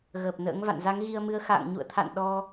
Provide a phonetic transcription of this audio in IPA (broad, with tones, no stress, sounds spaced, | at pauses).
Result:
ɣ əː˨˩ p̚ n ə̰ː˧˥ ŋ v a̰˧˨ n z a˨˦ ŋ ɣ i˧ ə̯ m ɨ˨˦ ə̯ x a̰ː˧˨ ŋ ɲ ṵ˧˨ ə̯ t̪ʰ a̰˧˨ n ɗ ɔ˧